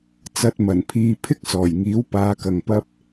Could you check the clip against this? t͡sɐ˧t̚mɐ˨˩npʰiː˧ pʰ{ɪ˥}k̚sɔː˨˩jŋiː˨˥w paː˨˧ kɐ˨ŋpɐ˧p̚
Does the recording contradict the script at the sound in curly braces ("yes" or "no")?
no